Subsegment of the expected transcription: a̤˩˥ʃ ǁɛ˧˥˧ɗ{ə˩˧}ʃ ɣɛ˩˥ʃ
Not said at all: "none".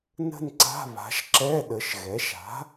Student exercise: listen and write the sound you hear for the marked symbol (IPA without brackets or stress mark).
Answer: ə˩˧